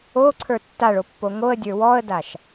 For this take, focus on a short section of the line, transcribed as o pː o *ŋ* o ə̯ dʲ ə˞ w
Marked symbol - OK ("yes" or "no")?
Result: yes